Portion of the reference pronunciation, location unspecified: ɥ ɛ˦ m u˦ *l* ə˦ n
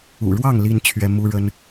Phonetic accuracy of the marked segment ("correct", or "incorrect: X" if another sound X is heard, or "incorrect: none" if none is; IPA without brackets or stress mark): incorrect: ɻ